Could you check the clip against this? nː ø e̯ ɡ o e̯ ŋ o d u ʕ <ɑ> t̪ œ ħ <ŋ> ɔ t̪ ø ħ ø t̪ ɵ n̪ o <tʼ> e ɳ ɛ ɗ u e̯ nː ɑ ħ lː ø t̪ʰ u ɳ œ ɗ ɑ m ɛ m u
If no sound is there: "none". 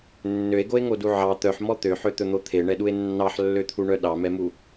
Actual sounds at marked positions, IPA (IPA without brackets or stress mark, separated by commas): ɑ, m, t̪ʰ